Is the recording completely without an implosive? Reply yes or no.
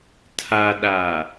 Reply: no